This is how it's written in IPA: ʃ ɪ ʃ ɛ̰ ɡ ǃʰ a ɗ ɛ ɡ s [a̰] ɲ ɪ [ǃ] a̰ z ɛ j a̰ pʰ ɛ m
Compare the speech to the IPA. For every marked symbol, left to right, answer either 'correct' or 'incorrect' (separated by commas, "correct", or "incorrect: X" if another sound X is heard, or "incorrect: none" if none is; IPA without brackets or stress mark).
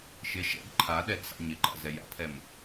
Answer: correct, correct